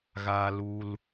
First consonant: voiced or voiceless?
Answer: voiced